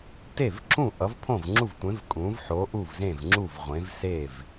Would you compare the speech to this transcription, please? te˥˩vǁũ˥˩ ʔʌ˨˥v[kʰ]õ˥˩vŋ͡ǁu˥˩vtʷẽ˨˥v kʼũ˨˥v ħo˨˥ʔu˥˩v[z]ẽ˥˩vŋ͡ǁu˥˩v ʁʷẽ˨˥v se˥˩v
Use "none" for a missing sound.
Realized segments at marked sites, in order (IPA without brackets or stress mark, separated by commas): pʰ, z